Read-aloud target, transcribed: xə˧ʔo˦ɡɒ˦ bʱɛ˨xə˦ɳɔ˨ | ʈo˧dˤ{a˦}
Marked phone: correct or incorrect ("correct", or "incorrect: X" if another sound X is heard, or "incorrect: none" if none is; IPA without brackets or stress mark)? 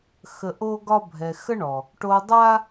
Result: correct